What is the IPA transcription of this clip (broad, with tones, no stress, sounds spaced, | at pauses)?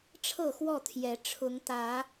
ʈ͡ʂʰ ɤ˥˨ x w ɔ˥˨ t̪ʰ j ɛ˨˦ ʈ͡ʂʰ ʊ˨˦ ŋ t̪ ä˨˦